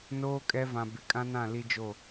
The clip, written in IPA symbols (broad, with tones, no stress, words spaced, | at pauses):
noː˦kʼɛ˦vã˨ bɪ˨kʼã˦nã˦˨ li˦d͡ʒo˦˨